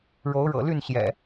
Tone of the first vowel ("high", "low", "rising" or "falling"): rising